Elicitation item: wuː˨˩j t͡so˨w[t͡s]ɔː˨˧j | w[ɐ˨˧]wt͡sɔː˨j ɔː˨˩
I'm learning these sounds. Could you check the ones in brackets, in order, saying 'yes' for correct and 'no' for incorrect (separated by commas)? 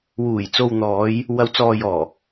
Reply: no, yes